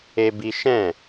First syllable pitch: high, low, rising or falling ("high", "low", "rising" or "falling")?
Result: high